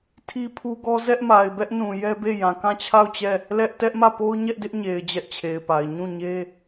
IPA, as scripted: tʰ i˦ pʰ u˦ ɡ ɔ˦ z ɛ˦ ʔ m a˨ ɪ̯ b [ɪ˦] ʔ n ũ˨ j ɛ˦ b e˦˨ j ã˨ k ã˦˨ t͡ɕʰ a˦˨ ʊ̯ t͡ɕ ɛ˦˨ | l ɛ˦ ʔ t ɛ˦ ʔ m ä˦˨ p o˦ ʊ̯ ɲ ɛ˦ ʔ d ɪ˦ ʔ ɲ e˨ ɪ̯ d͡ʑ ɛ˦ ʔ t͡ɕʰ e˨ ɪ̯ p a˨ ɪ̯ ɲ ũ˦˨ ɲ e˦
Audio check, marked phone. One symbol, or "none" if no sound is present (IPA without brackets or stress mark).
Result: ɛ˦